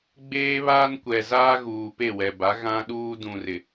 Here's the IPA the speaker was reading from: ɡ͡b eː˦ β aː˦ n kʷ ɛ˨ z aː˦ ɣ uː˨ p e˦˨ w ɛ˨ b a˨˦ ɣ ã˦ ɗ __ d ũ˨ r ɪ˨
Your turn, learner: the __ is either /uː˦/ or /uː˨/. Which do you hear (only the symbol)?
uː˦